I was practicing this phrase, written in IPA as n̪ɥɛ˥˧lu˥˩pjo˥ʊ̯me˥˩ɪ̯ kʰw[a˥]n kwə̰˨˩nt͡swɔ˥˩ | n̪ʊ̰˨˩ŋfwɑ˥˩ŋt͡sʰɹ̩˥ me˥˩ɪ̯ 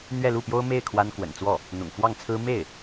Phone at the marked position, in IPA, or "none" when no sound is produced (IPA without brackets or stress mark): a˥